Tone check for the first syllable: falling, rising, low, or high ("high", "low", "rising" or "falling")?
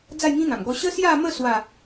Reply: falling